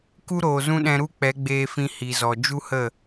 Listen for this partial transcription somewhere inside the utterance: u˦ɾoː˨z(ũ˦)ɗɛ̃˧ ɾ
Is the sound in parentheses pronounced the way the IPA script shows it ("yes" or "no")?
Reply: yes